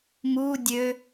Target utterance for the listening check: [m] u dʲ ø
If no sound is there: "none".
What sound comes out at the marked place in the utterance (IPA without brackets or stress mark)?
m